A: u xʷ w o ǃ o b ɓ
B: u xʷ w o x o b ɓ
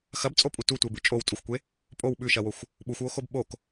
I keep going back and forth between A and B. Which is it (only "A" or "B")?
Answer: B